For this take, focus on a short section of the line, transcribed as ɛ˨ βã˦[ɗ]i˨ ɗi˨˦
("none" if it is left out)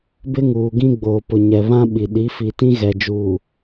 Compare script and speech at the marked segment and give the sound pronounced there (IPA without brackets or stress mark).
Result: ɓ